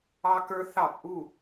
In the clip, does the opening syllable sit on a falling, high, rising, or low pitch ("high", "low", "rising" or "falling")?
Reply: high